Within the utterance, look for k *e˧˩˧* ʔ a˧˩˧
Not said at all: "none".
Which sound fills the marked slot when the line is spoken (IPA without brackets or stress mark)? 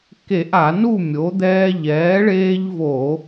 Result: e˧˩˧